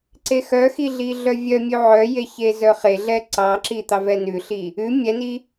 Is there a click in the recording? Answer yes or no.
yes